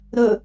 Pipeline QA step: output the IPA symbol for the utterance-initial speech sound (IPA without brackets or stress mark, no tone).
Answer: ɾ